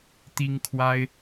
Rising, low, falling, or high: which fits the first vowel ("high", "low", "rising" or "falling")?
high